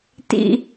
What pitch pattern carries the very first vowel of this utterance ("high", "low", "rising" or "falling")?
high